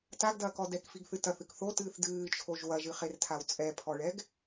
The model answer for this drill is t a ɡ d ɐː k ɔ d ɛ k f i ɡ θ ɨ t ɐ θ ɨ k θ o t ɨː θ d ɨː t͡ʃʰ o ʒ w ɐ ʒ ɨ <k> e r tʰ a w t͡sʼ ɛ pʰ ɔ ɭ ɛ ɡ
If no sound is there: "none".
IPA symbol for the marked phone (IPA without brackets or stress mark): χ